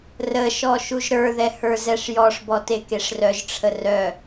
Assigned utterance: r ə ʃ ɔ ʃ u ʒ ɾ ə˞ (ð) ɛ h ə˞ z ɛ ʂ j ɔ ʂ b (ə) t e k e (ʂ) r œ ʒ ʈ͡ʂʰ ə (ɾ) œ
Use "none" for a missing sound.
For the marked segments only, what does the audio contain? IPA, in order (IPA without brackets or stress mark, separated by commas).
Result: ð, ɔ, ʂ, r